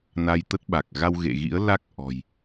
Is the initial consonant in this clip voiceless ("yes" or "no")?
no